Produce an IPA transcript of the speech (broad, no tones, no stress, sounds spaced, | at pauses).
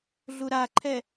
ɮ u ɾ a ǃʰ ɛ